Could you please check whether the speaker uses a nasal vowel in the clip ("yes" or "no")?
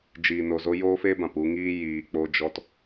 yes